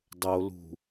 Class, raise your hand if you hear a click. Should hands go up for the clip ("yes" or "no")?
no